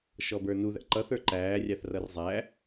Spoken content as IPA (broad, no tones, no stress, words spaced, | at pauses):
ʃɔbə˞nuðæ̰ ǃʌθə˞ ǃæːrʲɑθrʌr zˤæ